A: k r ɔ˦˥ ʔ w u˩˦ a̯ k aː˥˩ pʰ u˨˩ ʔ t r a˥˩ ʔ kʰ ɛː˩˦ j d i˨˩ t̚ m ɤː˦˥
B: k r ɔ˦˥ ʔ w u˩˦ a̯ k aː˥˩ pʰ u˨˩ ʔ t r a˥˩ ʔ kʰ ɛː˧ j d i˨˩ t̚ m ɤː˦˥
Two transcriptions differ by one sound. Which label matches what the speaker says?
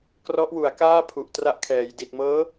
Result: A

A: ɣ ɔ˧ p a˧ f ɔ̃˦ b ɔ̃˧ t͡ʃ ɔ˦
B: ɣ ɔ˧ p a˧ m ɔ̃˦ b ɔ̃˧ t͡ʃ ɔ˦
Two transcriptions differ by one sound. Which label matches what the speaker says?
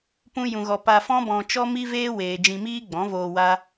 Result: A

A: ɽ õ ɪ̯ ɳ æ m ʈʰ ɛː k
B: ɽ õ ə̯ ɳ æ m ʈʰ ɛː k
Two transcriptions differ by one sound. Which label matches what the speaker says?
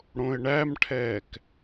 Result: A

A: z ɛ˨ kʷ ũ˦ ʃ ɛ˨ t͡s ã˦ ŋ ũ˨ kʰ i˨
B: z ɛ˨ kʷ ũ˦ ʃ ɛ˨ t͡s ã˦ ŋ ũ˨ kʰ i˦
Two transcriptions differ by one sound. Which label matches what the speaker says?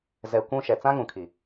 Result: A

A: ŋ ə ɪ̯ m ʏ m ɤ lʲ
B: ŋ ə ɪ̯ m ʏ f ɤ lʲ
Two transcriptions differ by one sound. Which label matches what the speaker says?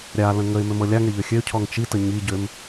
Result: A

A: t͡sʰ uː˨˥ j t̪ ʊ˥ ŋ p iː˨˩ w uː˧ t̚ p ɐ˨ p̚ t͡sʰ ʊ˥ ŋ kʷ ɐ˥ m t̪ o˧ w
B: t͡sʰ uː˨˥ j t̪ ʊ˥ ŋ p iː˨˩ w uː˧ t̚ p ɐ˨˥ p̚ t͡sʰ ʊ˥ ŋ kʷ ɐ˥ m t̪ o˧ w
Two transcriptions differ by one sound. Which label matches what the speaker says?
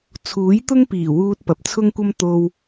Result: B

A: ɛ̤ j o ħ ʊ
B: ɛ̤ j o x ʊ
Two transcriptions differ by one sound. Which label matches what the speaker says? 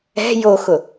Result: B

